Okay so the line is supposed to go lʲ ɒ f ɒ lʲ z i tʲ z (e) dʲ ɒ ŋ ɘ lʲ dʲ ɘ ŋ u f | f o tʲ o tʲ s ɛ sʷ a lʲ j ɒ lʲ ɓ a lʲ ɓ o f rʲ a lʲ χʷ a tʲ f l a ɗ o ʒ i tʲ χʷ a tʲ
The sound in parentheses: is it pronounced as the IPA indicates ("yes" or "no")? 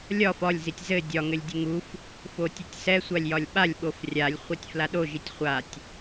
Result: no